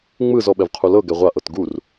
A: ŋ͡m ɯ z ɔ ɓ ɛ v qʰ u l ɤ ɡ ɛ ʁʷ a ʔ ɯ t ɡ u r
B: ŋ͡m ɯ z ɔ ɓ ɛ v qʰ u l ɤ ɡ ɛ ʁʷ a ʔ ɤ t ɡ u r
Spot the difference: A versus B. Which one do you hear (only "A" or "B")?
B